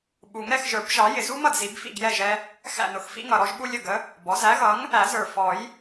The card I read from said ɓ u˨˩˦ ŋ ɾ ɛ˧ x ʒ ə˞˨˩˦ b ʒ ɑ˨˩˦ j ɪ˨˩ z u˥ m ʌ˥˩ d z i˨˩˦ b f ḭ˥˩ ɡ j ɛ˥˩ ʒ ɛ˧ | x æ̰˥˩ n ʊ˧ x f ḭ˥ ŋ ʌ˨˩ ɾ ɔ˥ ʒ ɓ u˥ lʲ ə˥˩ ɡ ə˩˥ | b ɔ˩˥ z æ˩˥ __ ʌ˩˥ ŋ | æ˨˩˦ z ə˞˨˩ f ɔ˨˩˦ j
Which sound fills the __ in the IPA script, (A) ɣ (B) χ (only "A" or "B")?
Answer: A